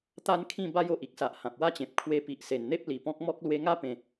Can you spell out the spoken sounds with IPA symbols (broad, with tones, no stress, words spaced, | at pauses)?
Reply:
t̪a˦nkʰĩ˥˧ ba˦jo˨ʔ i˦k̚sa˨ʔ hã˨p̚wa˦t͡ɕẽ˨p̚ kʰwe˧pi˨ʔse˨˩nn̪e˦p̚ li˨˩ pɔ̃˦k̚ mɔ˦k̚ lwe˦ ŋa˦ pẽ˧